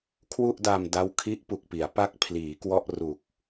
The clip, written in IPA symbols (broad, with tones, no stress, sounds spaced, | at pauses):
kʰ w u˥˩ ʔ d a˧ m d a˦˥ w kʰ i˦˥ ʔ p u˨˩ k̚ p i˩˦ a̯ p a˥˩ k̚ pʰ l iː˩˦ k w ɔ˥˩ ʔ r u˨˩ k̚